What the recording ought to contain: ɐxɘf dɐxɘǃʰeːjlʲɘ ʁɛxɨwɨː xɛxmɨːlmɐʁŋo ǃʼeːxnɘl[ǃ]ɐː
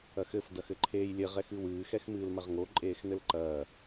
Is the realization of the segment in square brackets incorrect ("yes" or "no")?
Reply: no